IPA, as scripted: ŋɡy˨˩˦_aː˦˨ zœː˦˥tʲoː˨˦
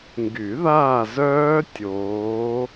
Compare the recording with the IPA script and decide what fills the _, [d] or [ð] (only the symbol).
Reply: ð